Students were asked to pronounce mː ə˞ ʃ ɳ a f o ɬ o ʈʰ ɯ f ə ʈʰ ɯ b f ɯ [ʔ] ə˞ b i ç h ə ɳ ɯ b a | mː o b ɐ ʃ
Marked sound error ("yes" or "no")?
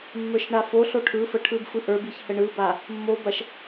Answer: no